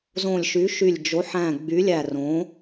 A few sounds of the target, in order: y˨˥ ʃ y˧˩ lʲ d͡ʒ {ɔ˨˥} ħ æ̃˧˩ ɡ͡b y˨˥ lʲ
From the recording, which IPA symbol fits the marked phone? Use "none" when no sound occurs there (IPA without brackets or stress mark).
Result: o˨˥